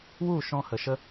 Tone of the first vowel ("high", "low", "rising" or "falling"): falling